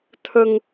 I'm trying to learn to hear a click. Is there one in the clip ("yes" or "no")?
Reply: no